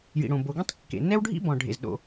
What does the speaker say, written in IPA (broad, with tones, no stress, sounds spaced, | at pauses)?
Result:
j ḭ˩ ɽ õ˩ b o˩ ɡ ĩ˥ tˤ kː ḛ˩ n ɛ˥ w ɖʱ ḭ˥ b ɔ̃˩ ɖʱ ḛ˩ z ɗ o̰˩